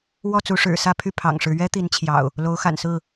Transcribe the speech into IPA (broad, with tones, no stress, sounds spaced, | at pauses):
w ɔ˥˨ t͡s u˨˦ ʂ ɻ̩˨˩ s ä˥˨ pʰ y˥˨ pʰ ɑ̰˨˩ ŋ ʂ ɻ̩˦ ɥ ɛ˦ t̪ i˨˦ n t͡ɕʰ j ɑ̰˨˩ ʊ̯ | l o˨˦ ʊ̯ x a̰˨˩ n s ɹ̩˥˨